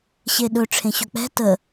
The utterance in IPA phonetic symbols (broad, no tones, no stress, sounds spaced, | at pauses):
ɕ e ɗ ɵ ʈ͡ʂʰ ẽ ɕ ɵ k͡p ɛ̤ t ə